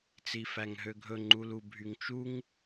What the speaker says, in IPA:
t͡s i f æ ŋ ɦ ø ɡʱ ɵ ŋ͡ǃ u l u bʱ y ŋ t͡ʃ u ŋ

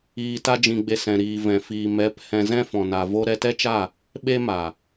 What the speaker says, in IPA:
iː˧ t a˦ d͡ʒ ĩ˧ ɡ͡b e˧ s ɛ̃˨ ɾ iː˨ v ɛ̃˨ f iː˨ m ɛ˨˦ p h ɛ̃˧ z ɛ̃˦ f ɔ̃˨ n a˨ v o˦ ɾ ɛ˧ t ɛ˦ t͡ʃ a˦˨ | ɓ e˦ m a˨

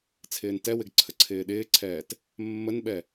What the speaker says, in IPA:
t͡sʰ ɪː n t ɛ w ɪ ɡ ǀʰ ə ǀʰ ɪː ɗ ɪː ǀʰ ɛː t | mː ə n ɓ ɛ

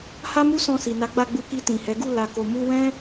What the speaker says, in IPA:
h a˦ m u˦ s ɔ̃˧ s i˨ n a˨˦ ɡ͡b a˧ ɡ͡b u˧ k i˧ t ĩ˨ h ɛ˨˦ ɡ u˦˨ l a˨ k o˨ m u˧ w ɛ̃˦

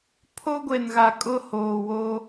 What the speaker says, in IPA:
pʰ o˦ ɡʷ e˨ n ɣ a˨ kʼ ʊ˦ h oː˨ w o˦

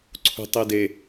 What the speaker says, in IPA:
ǀʰ ṳ tˤ i d e

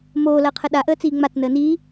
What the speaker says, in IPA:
m oː l ɐː qʰ ə ɗ a ʔ əː t͡s iː ŋ͡m a t͡s n əː n iː

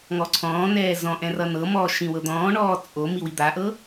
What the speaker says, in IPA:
ŋ ɔ ǀʰ ɔ̃ː n ɛː z ɔ̃ ʔ ɛ̃ r ʌ n ɤ m ɔː ʃ ĩ w ɤ d̪ ɔ̃ː ɳ ɔː t͡sʼ o m i w i d̪ a ʔ ɤ

